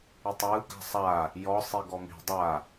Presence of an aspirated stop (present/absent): absent